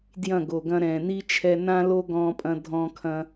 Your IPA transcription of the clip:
d j ɐ̃˦˨ ɡ o˨ ɡ ɐ̃˧ ɾ ɛ̃ː˨ n i˦ t͡ʃʰ ɛ˧ n ã˦ l o˦ ɡ ɔ̃˦ pʼ ɐ̃˦ dʱ ɔ̃˧ kʰ ɐ̃˧

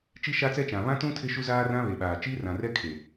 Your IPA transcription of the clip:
t͡ʃ i˦ ʃ a˦ t͡s ɛ˦ t͡ʃ ã˨ β ã˦ t ũ˦ tʰ ɪ˦ ʃ u˦ z aː˦ r ã˦ β e˨ ɓ aː˨ t͡ʃ i˦ r ã˨ r ɛ˦ kʰ e˨

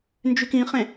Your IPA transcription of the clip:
n d͡ʒ y k ĩ χ ẽ

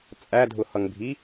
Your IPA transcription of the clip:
t͡sʼ æ dʱ ʊ h ʌ ŋ bʱ i

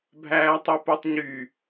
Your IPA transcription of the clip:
bʱ æː tˤ i p o tˤ ɲ y

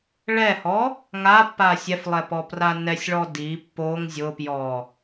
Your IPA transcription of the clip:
ɭ ɛ h ɔ | ŋ a pː a sʲ ɛ f lˠ ɛ p ɔ p r a n ɛ sʲ ɭ ɔ d i pː o ŋ zʲ ʊ p j ɔ

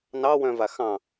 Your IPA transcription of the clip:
n ɑ w œ̃ v a x ɑ̃

